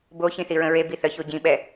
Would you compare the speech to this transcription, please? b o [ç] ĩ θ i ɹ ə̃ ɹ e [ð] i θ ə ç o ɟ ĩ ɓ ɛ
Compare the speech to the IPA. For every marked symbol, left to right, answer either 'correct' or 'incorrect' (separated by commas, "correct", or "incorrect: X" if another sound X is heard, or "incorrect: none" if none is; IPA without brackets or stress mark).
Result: correct, incorrect: b